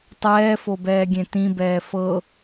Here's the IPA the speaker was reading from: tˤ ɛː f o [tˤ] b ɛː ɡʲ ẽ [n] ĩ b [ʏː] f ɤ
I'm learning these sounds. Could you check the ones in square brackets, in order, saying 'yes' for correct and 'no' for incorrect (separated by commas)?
no, no, no